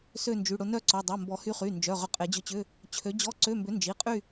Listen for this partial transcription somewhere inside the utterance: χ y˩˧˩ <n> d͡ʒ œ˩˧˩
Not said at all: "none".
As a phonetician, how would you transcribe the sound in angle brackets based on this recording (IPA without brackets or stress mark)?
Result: n